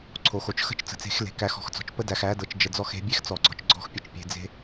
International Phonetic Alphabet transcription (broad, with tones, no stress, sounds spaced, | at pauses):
ǀʰ o˨ x o˨ t͡ʃ x ə̤˦ t͡ʃ t͡s ə̤˨ t͡s e̤˨˦ x l e̤˨ k æ˧ x ɔ̤˧ x t͡s ɔ̤˨ t͡ʃ p ə˦ d æ˨ x æ˨˦ d ɤ˨ t͡ʃ d͡ʒ ə˨ d͡z ɔ˧ x e̤˨˦ bʲ e˦ x t͡s ɔ˨ ɡ͡ǀ ɔ̤˧ t͡ʃ ɡ͡ǀ ɔ̤˦ x pʲ ə˨ t͡ʃ pʲ e̤˧ d͡z e̤˦